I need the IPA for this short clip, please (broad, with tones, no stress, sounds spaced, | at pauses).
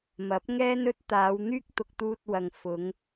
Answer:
m ɐ˨˥ p̚ ŋ ɛː˥ n ɵ˥ t̚ t̪ aː˨˧ w n̪ yː˥ k̚ t̪ ʊ˧ k̚ t̪ uː˧ t̚ w ɐ˨ ŋ f ʊ˨˧ ŋ